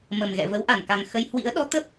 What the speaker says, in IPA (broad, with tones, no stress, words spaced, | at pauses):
mə˨˩mɣɛ̰˧˨və˨˦wʔa˧˩n ka˨˩ŋ xə˧j hwḭ˧˥ə̯ɗɔ˨˦ t̪ə˦˥p̚